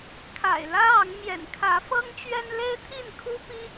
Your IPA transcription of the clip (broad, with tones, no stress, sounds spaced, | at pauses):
kʰ a̰˨˩ ɪ̯ l ä˦ ɑ˨˦ ŋ m j ɛ̰˨˩ n kʰ ä˨˦ f ɤ˦ ŋ t͡ɕ ɥ ɛ˦ n l e˦ ɪ̯ t̪ʰ i˥˨ n kʰ u˦ p i˦